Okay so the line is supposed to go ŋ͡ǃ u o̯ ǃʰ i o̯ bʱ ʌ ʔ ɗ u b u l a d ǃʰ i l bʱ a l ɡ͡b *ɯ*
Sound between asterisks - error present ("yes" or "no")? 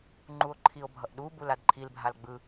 no